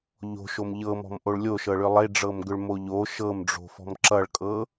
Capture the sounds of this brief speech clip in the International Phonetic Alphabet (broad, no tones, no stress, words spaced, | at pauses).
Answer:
ʎo̤ʃom ʎɤmɔ̤mʔoɭ lʲoʃɤɭʏ lˠeɖ͡ʐɤmɡʏɭmo ʎo ʃɤmɖ͡ʐo̤fɔ̤m ǁʌɭkʼɤ